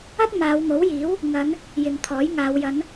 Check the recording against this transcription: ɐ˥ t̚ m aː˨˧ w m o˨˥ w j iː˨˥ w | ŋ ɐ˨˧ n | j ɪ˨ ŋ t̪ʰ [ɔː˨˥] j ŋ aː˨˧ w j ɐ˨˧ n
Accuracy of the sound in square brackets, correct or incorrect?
correct